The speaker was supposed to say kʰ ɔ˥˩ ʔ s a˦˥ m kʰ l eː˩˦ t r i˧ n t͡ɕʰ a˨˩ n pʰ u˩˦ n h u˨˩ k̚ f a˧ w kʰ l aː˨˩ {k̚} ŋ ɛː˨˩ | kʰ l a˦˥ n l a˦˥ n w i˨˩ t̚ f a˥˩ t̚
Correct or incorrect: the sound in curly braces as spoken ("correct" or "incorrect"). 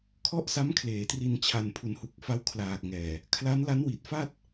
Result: correct